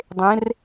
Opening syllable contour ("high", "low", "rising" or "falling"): rising